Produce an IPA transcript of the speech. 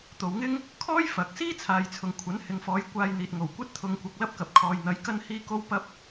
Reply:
t̪ o˨ w ŋ ɪ˥ ŋ | kʰ ɔː˥ j f ɐ˨˥ k̚ s iː˥ t͡sʰ aː˨ j t͡sʰ ʊ˨ ŋ kʷʰ ɐ˨˥ n h ɪ˨ ŋ f ɔː˨˧ j kʷ aː˧ j n̪ iː˨ t̚ ŋ o˨˩ w kʷ ɐ˥ t̚ t̪ʰ ʊ˧ ŋ kʷ ɐ˧ k̚ l ɐ˥ p̚ k ɐ˨ p̚ kʰ ɔː˨ j n̪ ɐ˨˧ j k ɐ˥ n h iː˥ k o˥ w p ɐ˥ p̚

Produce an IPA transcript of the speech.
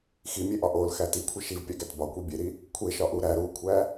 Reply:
x i mʲ e ʔ ɒ ʔ o l x æ t i kʷʰ e ʃ i v pʲ æ ɡ æ t b ɒ kʷ i bʲ e ɾ i | kʷʰ e ʃ ɒ ʔ u ɾ æ ɾ u kʷʰ æ

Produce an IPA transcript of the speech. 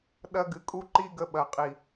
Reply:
ɗ ɐ˦ ɡ ɨ˧ kʼ u˦ ǃ i˦ ɡ ə˧ ɓ ɐ˨ qʼ i˨

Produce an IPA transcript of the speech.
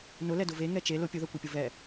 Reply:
n ʊ l ɛ d ʊ v e ŋ ɛ t͡ʃ e l ʊ pʲ ʊ ð ɛ kʷ ɛ pʲ ʊ v ɛ

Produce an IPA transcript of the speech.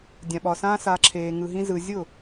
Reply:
dʲ ã˨ ɓ ɒ˨ s ãː˧ s a˧ ǁʰ eː˧ ŋ ɯ˧ ɦ ĩ˦ z ɯ˧ zʲ ʊ˦˨

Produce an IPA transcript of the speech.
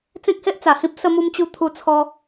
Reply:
t͡s ẽ˦ k̚ h e˦ ʔ t͡s a˨˩ h ĩ˦ p̚ s ə˧ m u˧ m t͡ɕ u˧ t̪ʰ u˧ t͡sʰ ɔ˧

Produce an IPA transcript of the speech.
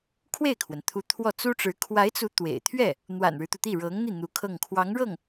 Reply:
kʰ w e˥˩ ɪ̯ kʰ w ə˩ n t̪ʰ u˧˥ t̪ʰ w ɔ˥˩ t͡s u˥ ʈ͡ʂ ɻ̩˧˥ kʰ w a˧˥ ɪ̯ t͡s u˧˥ t̪ w ḛ˨˩ ɪ̯ t̪ʰ ɥ ɛ˥˩ | n̪ w a̰˨˩ n ɻ ɻ̩˦ t̪ u˩ t̪ i˥˩ ɻ ɤ˧˥ ŋ n̪ i˥˩ n̪ u˧˥ kʰ ɤ˥˩ ŋ kʰ w ɑ˧˥ ŋ ɻ ɤ˥˩ ŋ

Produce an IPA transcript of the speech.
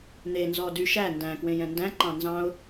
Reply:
n̪ e n z ɔ d y ʃ æ n d æ̃ k w ẽ j ɛ̃ n d æ̃ ǃ ɑ̃ n z ɑ̃ ʊ̯

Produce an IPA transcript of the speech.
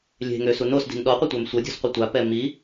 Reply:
lʲ e̤ ŋ ø s u n o s d i̤ n ɗ ɔ qʷ ə tʷ a m sʷ ə dʲ ṳ s qʷ e tʷ a p ɛ m i

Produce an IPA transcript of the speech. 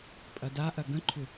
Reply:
pʼ ɐ d a ʔ ɐ ɡ ə̃ ǃʰ ʏ

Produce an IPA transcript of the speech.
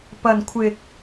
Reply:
p ɐ˨ n kʷʰ ɪ˨ k̚

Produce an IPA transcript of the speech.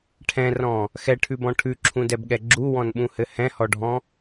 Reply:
ʈʰ ɛ̃ r ɔ̃ | x ɛ ʈʰ ʉ b ɔ̃ ʈʰ ʉ ǁʰ ũ d ɛ b ɠ ɛ ɡ͡ǁ u w ɔ̃ n ɓ ũ h ɘ h ɛ̃ h ɔ ɖʱ ɔ̃

